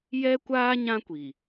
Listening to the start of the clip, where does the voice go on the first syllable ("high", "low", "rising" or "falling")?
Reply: high